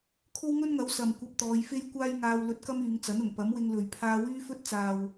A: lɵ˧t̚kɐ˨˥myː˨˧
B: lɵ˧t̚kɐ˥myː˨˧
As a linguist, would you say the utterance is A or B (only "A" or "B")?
B